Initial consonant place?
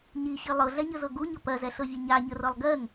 palatal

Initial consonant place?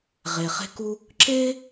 uvular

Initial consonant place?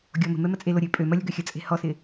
velar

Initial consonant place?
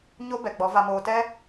palatal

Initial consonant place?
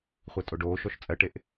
uvular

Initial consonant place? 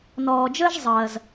alveolar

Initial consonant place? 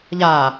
palatal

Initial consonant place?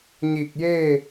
palatal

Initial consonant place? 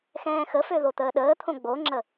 velar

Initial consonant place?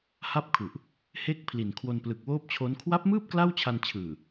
glottal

